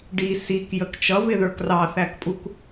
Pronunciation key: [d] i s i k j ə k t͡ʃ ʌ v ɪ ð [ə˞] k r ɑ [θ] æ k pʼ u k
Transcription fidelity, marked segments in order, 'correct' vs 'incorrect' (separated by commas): incorrect, correct, correct